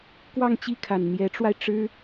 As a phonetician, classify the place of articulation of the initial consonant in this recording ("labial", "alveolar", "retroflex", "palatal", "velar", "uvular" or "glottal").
velar